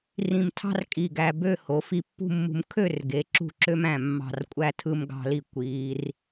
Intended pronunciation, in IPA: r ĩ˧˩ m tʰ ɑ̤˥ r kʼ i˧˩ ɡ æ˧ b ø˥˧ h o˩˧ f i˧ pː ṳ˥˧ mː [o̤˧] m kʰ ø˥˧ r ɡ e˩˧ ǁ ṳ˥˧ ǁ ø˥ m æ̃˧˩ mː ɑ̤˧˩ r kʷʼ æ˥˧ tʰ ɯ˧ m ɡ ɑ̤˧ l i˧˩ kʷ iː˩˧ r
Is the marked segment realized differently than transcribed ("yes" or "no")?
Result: yes